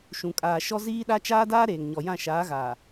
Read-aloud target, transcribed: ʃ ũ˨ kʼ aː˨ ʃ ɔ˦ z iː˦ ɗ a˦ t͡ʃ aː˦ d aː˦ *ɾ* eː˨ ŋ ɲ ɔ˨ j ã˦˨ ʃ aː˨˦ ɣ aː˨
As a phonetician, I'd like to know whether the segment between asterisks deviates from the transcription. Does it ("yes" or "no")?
no